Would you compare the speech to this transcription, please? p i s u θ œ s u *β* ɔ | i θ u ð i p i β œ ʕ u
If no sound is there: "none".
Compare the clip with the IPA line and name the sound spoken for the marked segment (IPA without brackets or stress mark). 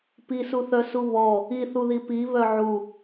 β